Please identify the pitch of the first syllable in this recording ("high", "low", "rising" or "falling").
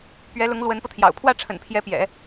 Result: rising